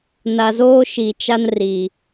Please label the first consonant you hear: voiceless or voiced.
voiced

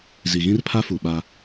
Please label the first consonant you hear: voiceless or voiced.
voiced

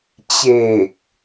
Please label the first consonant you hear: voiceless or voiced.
voiceless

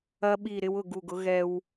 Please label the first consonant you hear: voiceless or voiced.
voiced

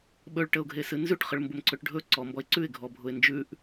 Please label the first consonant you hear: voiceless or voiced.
voiced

